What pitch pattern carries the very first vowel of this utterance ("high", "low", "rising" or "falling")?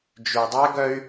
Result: low